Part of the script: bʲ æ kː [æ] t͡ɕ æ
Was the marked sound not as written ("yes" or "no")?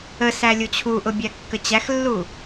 yes